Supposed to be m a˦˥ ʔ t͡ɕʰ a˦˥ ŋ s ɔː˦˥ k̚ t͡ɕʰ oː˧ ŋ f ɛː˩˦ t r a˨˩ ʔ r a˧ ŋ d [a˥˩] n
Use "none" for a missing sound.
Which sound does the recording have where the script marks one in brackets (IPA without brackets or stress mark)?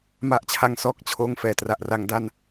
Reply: a˥˩